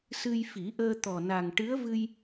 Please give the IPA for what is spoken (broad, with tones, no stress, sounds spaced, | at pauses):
s ɨ˧ j f i˨˩˦ ʔ əː˧ t̪ ɔ˨˩ n a˨˩ ŋ ʈ ɨ˧˥ ə̯ v ɨ˧ j